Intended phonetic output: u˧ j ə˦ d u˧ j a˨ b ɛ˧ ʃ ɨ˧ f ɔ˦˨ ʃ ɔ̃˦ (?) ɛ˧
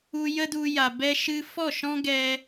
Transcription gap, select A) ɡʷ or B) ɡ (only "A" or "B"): B